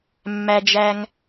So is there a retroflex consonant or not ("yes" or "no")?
no